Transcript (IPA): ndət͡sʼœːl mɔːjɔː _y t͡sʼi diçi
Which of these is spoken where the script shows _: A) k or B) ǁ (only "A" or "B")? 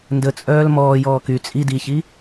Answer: A